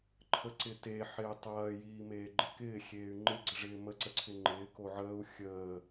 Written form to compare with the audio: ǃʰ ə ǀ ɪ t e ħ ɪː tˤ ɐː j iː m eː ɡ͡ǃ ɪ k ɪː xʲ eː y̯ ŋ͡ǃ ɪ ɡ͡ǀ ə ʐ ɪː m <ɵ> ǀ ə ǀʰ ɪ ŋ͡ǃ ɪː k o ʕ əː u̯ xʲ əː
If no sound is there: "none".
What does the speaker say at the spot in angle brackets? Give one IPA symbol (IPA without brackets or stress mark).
ə